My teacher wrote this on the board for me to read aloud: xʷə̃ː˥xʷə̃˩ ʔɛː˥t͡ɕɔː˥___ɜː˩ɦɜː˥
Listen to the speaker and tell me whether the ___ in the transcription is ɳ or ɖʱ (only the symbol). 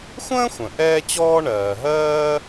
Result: ɳ